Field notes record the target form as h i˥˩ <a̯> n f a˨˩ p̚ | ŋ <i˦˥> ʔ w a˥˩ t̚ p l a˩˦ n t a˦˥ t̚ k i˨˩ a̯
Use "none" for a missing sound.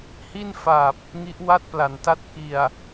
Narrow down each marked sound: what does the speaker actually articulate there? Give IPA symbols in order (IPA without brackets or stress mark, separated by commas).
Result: none, i˦˥